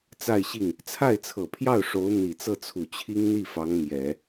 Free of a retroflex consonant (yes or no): no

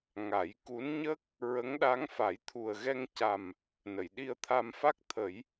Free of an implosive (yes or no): no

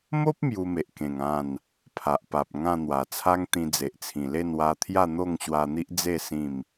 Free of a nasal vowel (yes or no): no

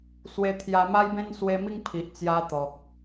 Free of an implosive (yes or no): yes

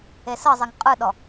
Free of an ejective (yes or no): no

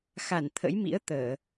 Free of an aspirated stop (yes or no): no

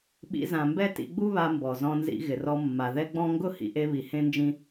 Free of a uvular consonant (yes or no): yes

